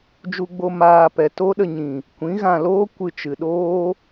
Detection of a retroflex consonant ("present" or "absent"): absent